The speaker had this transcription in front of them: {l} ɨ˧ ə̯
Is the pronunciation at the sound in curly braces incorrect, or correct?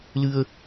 correct